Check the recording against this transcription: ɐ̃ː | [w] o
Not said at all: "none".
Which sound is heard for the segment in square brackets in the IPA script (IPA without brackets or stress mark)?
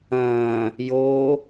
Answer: j